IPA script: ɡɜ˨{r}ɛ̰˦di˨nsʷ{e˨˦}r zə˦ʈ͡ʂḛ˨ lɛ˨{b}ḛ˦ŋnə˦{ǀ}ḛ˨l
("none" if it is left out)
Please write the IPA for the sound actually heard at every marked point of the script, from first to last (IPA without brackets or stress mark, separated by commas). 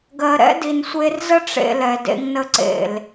ɾ, e˦, d, ǀ